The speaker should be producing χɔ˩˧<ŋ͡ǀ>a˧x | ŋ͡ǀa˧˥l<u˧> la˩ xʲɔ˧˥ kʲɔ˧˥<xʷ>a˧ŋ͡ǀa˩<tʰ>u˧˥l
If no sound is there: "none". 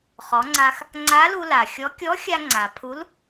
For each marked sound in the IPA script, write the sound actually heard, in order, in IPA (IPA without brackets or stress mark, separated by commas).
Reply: ŋ͡ǀ, u˧, xʲ, pʰ